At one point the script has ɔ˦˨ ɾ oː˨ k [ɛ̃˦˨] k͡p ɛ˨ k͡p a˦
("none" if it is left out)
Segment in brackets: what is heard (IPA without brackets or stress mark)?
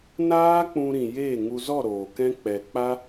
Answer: ɛ̃˦